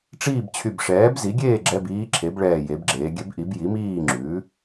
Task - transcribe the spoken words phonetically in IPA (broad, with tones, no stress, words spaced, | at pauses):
ʈ͡ʂiː˥˨bt͡ɕʰy˧˩bʂɛː˩˥b zi˩˥ɡʲeː˥˨ ɡ͡ǁɛ˧˥˧biː˧˥ǁʰe˩˥bɭɛː˧˩ je˩˥bɡ͡ǁeː˩˥ ɡʲɛ˧˥bʔi˩˥b ji˩˥miː˥˨ŋ͡ǁʉː˩˥